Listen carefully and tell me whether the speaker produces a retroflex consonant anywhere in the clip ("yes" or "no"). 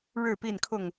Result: yes